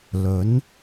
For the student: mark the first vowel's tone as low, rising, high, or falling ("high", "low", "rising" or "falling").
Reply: rising